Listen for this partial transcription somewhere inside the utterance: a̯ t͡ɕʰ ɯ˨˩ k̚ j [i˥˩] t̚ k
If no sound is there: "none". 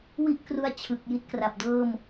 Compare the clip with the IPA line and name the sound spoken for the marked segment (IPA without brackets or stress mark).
i˦˥